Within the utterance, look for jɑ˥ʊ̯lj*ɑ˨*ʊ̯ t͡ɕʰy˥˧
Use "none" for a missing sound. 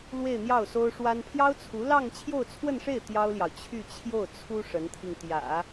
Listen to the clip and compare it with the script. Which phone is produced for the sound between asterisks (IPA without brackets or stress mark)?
ɑ˨